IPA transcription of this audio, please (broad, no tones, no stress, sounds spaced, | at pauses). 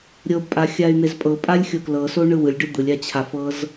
ɾʲ ɤ b pʼ a xʲ a y̯ n̪ e z pʼ ɤ pʼ a lʲ xʲ o k l ɤ s o ɳ ɯ w ɯ lʲ ɖ ɯ d̪ ɯ lʲ a t͡ɕʰ a f ɤ z